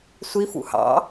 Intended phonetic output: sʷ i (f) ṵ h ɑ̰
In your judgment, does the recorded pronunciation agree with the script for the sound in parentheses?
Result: yes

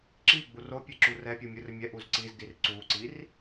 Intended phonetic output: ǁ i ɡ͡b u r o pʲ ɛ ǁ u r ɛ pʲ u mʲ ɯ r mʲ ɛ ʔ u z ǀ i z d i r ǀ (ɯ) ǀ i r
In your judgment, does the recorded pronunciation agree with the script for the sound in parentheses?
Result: no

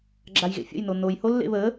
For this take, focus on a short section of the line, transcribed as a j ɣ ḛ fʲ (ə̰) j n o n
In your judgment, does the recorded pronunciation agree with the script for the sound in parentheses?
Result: yes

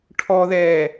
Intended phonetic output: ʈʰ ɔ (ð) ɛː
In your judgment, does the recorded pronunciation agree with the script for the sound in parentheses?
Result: yes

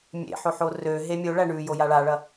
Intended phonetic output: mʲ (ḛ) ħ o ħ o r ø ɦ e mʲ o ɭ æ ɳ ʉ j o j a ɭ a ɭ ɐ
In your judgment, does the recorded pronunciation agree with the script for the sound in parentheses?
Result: yes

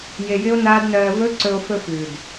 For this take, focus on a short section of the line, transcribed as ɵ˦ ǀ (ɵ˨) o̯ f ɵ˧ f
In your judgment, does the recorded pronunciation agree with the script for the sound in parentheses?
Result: no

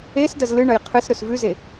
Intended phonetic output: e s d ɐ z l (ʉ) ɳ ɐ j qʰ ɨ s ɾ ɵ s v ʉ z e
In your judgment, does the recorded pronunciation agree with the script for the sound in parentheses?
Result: no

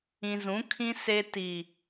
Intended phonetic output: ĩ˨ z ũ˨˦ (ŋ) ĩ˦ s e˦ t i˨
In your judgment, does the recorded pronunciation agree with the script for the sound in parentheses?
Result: no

